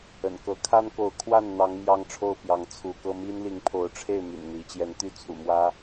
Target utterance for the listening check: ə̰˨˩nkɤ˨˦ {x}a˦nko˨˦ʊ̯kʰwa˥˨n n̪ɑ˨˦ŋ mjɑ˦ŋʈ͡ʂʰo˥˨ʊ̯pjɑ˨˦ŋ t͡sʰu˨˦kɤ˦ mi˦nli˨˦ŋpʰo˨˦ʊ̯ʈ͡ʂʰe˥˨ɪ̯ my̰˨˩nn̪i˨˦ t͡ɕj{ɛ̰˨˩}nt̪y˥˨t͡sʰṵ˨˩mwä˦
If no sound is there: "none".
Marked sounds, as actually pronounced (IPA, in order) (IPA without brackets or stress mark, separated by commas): kʰ, ɛ˨˦